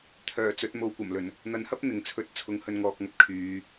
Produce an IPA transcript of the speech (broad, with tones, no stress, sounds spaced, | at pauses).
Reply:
t̪ʰ œː˨˩ t͡s ɵ˨˥ t̚ m o˨˧ w kʷ ɐ˨˩ m l ɵ˨˩ n | n̪ ɐ˨˥ n h ɐ˥ p̚ n̪ ɪ˨ ŋ t͡sʰ ɵ˧ t̚ t͡sʰ ʊ˨˥ ŋ h ɵ˨˧ n ŋ ɔː˨ k̚ ŋ ɐ˧ p̚ kʰ yː˨˧